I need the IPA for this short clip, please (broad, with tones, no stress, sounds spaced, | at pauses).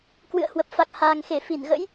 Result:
k w ɨ̰˧˨ ə̯ h w ə˨˩ p̚ f a˨˩ k̚ h aː˨˩ ŋ x e˧˩ f i˧˩ n ɣ ə̰˧˥ j